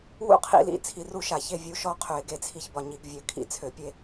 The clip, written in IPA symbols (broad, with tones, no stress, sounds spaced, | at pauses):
w ṵ˥˨ qʰ ḭ˧˩˧ l ḭ˧˩˧ t͡sʰ i˧˩˧ r u˥˨ ʃ a˧˩˧ ç e˥˨ vʲ u˨˦ ʃ ɔ˥˨ qʰ ø˧˩˧ ɪ̯ ɡ e˥˨ t͡sʰ i˥˨ ç b ɒ˥˨ ɲ i˨˦ ɡ vʲ ø˧˩˧ kʰ ḭ˧˩˧ t͡sʰ ø˧˩˧ pʲ e˥˨